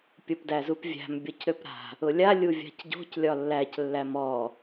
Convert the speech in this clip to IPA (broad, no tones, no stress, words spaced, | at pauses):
pʲopdæzupvʲæ̤m bʲɔcɾøpɾa̤ | ʊlʲa lʲuvʲa̤cɟo̤c lʲɒlːæc lːæmɔ